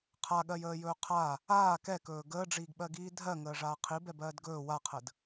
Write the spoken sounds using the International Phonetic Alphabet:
qʰ a ɠ ɜ j əː j ɵː qʰ a | aː k ɛ k ɵː ɡ əː ɖ͡ʐ iː ɡ ɓ ɜ ɡ iː dʱ ɜ ŋ əː ʐ aː qʰ i b ɛ b ɜː d ɡ ɵː w a qʰ ə d

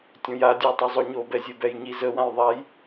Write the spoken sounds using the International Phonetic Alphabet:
tʲ õ j a dʲ u j tˤ ø zˤ o ɲ o b ɛ zʲ e b ɛ j ɲ i z ə w ã j ðˤ a j

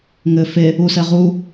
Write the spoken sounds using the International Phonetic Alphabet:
ŋ ɘ f e | u s ɛ ʁ u

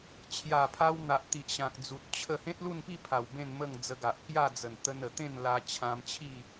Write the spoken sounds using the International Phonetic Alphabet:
t͡ɕʰ j a˨˩ pʰ a˧ w n̪ a˨ ʔ t̪ i˨ ʔ ɕ ã˨ k̚ d͡z u˨ t̚ t͡ɕʰ ə˥˧ h ẽ˦ t̚ l u˥˧ n p i˥˧ pʰ a˨˩ w b ẽ˥˧ n m ə˥˧ ŋ d͡z ə˧ ɡ a˨ ʔ k j a˥˧ d͡z ə˨˩ n t̪ ə˧ n ə˨˩ t̪ ẽ˥˧ n l a˧ t͡ɕʰ ã˧ m t͡ɕʰ i˥˧

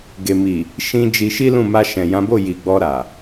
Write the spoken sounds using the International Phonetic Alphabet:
ɡ e˨ m i˨ | ʃ ĩ˧ d͡ʒ i˧ ʃ i˦ l ũ˦˨ m a˧ ʃ ɛ̃˨ j ã˨˦ b o˦˨ j i˨ ɡ͡b ɔ˧ ɾ a˨

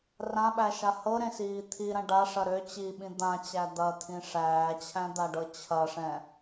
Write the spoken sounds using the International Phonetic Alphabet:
r ã ɓ æ ʃ a h ɤ ɾ ẽ s iː t̪ʰ i ɾ ɐ̃ ɖ a ʂ ɐ ɾ ø t͡ɕ i ɓ ĩ d̪ ã t͡ɕ æ d̪ ɐ t̪ʰ ĩ ʂ æː t͡ɕʰ æ̃ d̪ a ɖ ɤ t͡ɕʰ ɐ ʂ ɛ̃

